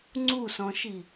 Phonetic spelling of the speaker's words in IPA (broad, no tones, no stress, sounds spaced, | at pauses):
ŋ͡ǀ u s ɔ̃ ʃ i